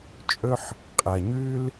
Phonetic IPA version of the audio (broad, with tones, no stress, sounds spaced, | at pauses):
t͡ʃʼ ɵ˦ ħ | qʼ ɐ˨ ɲ ʉ˦ l